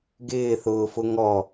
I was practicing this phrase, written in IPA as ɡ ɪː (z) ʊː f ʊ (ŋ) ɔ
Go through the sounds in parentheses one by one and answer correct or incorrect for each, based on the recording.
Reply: incorrect, correct

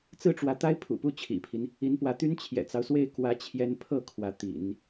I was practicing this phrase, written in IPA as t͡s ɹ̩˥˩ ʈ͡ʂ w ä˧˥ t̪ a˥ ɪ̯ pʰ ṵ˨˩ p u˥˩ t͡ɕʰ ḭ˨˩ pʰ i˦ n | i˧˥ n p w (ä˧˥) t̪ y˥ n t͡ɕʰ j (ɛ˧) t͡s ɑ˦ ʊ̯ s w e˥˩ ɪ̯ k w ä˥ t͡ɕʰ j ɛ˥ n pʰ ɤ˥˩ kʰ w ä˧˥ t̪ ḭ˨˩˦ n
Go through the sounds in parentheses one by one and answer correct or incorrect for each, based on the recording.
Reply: correct, incorrect

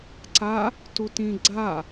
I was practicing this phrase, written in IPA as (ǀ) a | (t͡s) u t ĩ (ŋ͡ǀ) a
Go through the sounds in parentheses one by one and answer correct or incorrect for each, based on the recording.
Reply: correct, incorrect, incorrect

